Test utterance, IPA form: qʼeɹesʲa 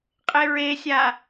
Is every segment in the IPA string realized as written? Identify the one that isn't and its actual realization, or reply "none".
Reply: none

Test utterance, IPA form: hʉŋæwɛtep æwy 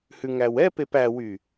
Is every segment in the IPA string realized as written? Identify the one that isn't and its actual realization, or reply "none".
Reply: t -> p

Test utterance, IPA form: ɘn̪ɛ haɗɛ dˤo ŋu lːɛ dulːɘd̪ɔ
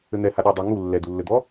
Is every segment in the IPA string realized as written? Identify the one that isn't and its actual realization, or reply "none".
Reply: none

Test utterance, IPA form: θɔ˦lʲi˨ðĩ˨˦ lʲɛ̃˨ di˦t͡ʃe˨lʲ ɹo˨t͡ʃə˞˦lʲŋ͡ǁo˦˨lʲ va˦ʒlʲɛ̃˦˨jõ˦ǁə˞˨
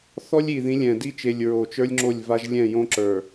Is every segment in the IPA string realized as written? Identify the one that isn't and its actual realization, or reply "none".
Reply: none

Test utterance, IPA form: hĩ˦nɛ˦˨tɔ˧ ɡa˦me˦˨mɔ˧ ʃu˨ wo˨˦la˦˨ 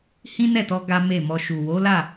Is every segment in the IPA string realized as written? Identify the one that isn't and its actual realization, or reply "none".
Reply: none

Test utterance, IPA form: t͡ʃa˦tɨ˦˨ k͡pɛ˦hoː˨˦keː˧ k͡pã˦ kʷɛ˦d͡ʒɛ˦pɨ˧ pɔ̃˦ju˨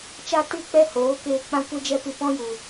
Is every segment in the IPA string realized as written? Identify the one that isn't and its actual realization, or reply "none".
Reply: none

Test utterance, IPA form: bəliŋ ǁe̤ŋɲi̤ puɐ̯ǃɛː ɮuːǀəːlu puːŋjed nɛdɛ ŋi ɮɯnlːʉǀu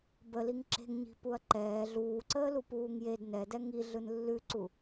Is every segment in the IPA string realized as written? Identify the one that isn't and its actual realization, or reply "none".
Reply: none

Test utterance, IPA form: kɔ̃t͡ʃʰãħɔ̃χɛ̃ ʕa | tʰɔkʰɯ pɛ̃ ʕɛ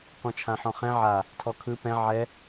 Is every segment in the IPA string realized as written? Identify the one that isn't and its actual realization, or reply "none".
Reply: none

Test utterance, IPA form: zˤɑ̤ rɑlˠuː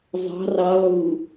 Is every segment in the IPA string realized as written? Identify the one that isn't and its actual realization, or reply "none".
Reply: none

